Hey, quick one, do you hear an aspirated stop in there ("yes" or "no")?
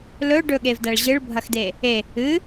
no